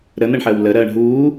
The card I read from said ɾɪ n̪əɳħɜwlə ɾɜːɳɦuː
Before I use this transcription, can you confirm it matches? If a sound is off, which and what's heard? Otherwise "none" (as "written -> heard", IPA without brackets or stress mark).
ɪ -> ə